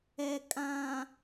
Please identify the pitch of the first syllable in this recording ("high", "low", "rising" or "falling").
low